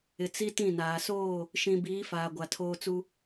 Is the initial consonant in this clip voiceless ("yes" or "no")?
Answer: yes